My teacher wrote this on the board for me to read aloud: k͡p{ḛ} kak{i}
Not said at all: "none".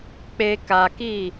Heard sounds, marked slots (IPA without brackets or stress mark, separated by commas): e, i